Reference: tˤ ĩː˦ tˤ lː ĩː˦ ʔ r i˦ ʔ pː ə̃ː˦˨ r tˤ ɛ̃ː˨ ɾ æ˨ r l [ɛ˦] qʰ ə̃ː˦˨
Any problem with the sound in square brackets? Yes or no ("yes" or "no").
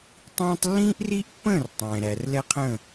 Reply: no